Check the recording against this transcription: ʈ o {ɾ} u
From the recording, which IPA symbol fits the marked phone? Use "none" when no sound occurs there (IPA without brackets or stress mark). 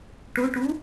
ʈ